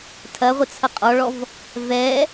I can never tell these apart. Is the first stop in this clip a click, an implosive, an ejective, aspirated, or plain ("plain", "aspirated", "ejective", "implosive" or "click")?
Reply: aspirated